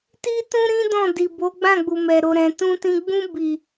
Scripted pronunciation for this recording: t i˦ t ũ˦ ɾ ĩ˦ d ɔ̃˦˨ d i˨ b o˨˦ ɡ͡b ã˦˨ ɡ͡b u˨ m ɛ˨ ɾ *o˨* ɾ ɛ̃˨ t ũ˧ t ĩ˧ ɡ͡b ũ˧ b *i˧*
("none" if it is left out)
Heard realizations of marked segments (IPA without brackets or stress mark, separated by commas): o˨, i˨